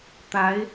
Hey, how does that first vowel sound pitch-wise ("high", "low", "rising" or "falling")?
rising